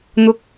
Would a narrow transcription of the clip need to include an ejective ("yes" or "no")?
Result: no